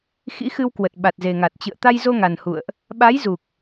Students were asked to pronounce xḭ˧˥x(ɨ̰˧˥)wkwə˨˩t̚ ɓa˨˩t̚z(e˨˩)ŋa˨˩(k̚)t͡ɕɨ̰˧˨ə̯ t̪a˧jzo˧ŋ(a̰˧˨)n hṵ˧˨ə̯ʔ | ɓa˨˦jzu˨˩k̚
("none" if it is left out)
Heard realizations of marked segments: ɨ˧, e˨˩, t̚, a˨˩

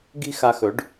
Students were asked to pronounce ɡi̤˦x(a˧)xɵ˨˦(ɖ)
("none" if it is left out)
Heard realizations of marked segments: a˧, ɖ

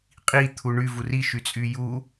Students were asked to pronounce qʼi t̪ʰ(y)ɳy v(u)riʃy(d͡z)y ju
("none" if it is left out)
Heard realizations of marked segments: u, u, t͡sʼ

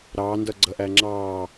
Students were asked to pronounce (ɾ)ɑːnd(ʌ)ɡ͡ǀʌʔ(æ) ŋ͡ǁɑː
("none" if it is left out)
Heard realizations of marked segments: ɾ, ʌ, æ

